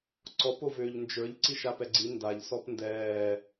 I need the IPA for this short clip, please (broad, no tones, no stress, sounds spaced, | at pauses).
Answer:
ǀ ɔ p o v ʏː ʎ n d͡ʒ ə˞ ʎ ǀ i ʃ a p ɛ ɡ͡ǀ i n d a ʎ s ɔ p n d ɛː